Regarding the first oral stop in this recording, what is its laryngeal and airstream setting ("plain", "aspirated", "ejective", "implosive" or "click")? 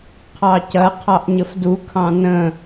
aspirated